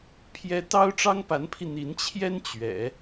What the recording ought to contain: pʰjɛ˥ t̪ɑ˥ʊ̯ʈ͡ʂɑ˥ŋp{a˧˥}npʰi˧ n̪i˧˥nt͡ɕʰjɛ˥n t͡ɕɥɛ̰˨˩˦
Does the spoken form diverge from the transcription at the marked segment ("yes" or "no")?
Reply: no